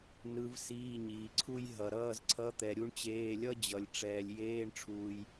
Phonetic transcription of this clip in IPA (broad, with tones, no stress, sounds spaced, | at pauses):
n ɯ˧˥ v s iː˧˥˧ ɲ iː˨ ǀʰ u˥ j ɦ ʌ˨ ɾ ʌː˧˥˧ z ǀʰ ʌ˧˥ t̪ ɛ˨ ɾʲ u˥ ɳ t͡ɕ eː˧˥˧ lʲ ʌ˥ d͡ʑ ʌ˨ lʲ ʈ͡ʂ ɛː˨ lʲ j eː˧˥˧ ɳ ʈ͡ʂʰ uː˨ j